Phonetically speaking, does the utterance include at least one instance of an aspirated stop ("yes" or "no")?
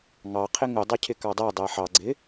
yes